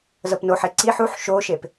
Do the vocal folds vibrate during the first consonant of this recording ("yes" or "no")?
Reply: yes